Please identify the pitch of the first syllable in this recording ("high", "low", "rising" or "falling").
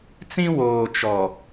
high